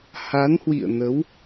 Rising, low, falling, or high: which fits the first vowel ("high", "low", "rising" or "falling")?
rising